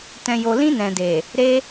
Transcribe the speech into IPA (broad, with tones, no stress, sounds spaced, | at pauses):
t ɛ̃˨ j o˨ l ĩ˧ n ɛ̃˨ d e˨ | ɾ e˧